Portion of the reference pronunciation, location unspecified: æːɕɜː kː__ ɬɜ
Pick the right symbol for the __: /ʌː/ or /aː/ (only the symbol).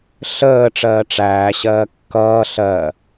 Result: ʌː